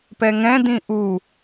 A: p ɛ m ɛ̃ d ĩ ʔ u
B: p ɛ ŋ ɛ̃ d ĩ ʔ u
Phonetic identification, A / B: B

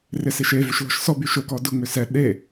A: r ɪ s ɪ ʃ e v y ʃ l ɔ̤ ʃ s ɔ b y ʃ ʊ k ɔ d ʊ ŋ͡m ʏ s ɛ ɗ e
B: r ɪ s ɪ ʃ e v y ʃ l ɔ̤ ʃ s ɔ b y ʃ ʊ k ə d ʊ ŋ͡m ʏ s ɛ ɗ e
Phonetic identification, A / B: A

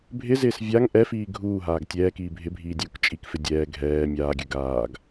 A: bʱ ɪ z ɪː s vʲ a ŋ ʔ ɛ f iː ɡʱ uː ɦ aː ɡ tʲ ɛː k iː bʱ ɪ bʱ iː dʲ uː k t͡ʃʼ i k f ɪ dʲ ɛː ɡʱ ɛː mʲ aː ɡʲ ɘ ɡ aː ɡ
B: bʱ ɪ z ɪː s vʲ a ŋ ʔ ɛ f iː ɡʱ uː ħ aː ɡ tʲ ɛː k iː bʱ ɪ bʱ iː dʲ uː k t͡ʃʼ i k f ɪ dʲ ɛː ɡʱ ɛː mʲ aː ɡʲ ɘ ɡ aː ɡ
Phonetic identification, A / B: A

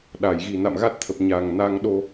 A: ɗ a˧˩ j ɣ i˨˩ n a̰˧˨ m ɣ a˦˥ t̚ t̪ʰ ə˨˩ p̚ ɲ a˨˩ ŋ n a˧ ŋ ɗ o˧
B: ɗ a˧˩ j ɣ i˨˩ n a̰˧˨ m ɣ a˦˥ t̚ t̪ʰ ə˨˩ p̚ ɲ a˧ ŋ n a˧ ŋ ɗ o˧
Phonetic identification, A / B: A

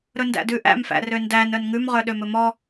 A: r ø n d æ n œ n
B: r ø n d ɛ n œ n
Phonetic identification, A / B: A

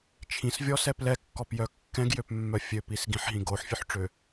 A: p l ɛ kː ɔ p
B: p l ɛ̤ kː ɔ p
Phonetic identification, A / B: A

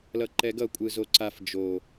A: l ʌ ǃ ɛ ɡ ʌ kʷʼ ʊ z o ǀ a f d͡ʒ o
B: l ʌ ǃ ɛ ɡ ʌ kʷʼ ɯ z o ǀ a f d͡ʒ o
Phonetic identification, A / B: B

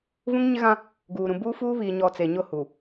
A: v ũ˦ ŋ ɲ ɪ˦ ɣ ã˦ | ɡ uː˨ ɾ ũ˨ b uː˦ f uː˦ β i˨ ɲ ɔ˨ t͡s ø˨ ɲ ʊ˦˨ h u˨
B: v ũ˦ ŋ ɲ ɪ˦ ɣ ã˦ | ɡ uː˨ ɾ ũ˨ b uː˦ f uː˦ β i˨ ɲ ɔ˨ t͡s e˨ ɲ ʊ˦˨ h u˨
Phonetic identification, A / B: B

